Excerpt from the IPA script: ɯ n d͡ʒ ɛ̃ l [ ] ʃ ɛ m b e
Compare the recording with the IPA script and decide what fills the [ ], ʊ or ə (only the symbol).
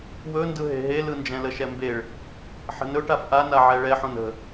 ə